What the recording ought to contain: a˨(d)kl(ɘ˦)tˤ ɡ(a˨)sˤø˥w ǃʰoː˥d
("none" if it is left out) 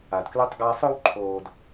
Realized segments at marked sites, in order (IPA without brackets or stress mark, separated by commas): d, ø˦, a˦